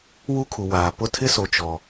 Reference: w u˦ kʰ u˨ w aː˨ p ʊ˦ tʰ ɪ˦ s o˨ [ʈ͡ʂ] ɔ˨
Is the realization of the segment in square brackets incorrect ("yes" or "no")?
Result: yes